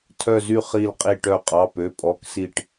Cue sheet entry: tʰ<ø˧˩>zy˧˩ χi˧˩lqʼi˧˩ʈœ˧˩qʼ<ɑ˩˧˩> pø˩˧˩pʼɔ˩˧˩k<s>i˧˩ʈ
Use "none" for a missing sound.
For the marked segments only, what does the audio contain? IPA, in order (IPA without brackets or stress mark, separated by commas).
œ˧˩, ɑ˩˧˩, s